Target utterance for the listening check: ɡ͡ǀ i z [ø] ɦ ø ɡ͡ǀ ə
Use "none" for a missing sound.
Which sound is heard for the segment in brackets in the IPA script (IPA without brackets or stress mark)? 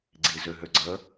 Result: ø